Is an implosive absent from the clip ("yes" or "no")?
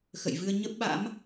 no